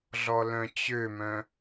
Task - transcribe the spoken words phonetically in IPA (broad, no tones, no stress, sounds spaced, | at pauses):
ɮ ɔ l œ̃ t͡ɕ ø m œ̃